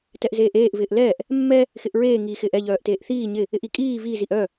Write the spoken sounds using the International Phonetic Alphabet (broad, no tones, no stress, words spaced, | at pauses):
tɛʔzeːʔeːʔ vɪːʔlɛːʔ | mːɛ | xɪʔɹeː ŋiːxɪːʔɛ ʎœːʔteːʔθiː ɲɪ | ɪʔikʼiː vi ziʔœ